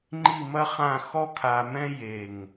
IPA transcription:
ŋ͡ǃ i˦˨ m ɐ˦ χ ã˦˨ x ɔ˦ kʰ a˧ m ɛ̃˦ j e˦˨ ŋ

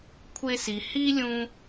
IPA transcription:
kʷʰ e˧ s i˩ h i˥ lʲ ũ˧

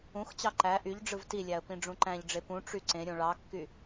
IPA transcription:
ũ x t͡ɕ ɑ ǃ æ ʔ y ʎ ɖ͡ʐ ɯ v t i lʲ æ ə̯ p ĩ ɖ͡ʐ ũ ǃ æ̃ ʎ ɖ͡ʐ e p ũ ʈ͡ʂ y ǀ ẽ ɾʲ õ ɭ ɑ kː y

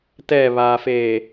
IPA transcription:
t ɛ β aː f eː

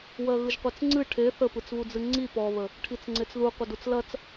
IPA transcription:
w ɜ ɣ ɯ ʒ qʷ ɜ t͡s ŋ͡ǀ ɨ ʈʰ e θ ə p ɯ t͡s β u d͡z ɨ ŋ͡ǀ i p ɔ β ə | ʈʰ i t͡s ŋ͡ǀ e t͡s ð u qʷ ə d u t͡s l ɐ t͡s

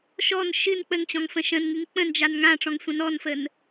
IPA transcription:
ʃ ɔ n ʃ ɨ n k͡p ə ŋ t͡ɕ ɔ̃ ŋ f ə̃ ʃ ə̃ n ŋ ɨ ŋ k͡p ə̃ n d͡ʒ a n ŋ ã ʈ͡ʂ ɔ̃ ŋ sʷ ə̃ n ɔ n f ə n

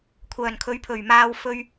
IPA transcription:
kʷʰ œː˨˩ n kʰ ɵ˨˥ ɥ pʰ ɵ˨˩ ɥ m aː˧ w f ɵ˧ ɥ

